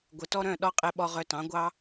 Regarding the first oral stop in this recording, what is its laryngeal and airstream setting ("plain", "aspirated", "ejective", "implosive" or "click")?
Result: plain